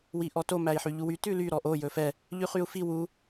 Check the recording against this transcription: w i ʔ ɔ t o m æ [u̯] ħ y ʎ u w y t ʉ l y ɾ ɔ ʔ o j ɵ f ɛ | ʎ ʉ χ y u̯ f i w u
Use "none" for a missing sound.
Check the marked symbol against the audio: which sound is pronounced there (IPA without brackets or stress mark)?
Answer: i̯